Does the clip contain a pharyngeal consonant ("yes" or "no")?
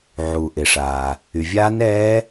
yes